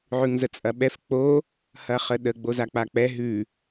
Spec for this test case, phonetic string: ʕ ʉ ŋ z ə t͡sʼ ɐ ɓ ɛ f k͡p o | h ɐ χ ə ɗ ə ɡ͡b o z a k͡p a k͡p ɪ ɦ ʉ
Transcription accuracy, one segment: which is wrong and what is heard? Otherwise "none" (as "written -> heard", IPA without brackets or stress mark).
ɪ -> ɛ